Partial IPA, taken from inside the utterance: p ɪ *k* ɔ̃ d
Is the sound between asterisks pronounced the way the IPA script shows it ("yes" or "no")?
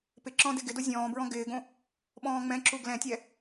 no